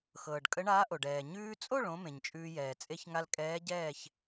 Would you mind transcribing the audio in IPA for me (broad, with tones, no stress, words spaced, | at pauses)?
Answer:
xɤː˩ɖkʼə˧˥ɳaː˧˥ʔo˩ɖ ɛː˩ɲʉː˧t͡sʼo˥˨ɭ õ˧˥mẽ˩ɲt͡ʃʼʉː˧jɛː˩ t͡sʼe˧çŋa˧l kʼɛː˧˥ɟɛː˥˨ç